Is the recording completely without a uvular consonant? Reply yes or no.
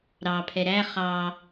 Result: no